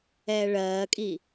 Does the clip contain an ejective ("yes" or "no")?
yes